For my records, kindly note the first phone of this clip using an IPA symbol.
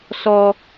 s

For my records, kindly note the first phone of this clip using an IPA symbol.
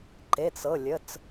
ǃ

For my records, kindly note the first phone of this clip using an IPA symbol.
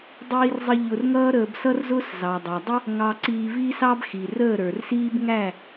dˤ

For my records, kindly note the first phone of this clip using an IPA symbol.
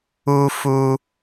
u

